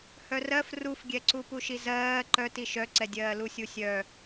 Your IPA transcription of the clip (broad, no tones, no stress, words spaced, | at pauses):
hœrɜf rufɡʲɛǀu puʃizɜː ǃœti ʃœǀɛdʲɜː lusʲusʲœ